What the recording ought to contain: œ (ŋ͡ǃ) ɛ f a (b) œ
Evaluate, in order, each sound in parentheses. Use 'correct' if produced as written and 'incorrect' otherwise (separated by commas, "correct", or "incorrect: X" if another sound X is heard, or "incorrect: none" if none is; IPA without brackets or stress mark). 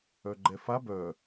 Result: incorrect: ɡ͡ǃ, correct